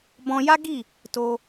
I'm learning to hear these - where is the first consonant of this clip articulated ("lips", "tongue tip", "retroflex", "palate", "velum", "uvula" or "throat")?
lips